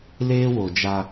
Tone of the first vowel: high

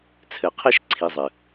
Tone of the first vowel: low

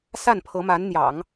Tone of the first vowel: falling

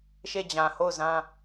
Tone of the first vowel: falling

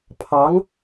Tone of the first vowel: rising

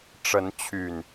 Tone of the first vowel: rising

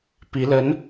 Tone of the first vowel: rising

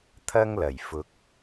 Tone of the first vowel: high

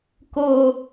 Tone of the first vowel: low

